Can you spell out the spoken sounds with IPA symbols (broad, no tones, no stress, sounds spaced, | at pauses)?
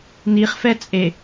n i χ f ɛ t͡sʼ e